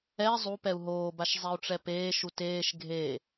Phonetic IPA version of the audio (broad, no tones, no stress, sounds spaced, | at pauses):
ɛ zˤ u p ɛ u̯ ɦ oː b a ʃ zˤ ɛ u̯ ʈ͡ʂ ɛ p eː ʃ u t eː ʃ ɡʱ e